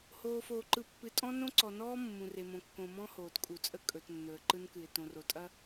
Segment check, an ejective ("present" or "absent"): present